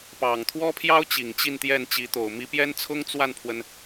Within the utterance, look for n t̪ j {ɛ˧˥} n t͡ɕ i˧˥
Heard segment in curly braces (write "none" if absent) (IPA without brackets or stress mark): ɛ˥˩